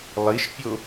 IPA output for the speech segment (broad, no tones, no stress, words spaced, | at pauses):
lˠiʃpʲo